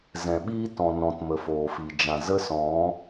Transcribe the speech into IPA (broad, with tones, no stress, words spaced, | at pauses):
zɛ̃˨ɓiː˦ tɔ̃˨ nɔ̃˨tmə˨ foː˨fi˨ d͡ʒã˨zə˦sɔ̃˨˦